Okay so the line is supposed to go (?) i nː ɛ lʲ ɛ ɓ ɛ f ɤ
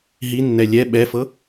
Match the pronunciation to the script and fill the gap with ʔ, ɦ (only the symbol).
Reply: ɦ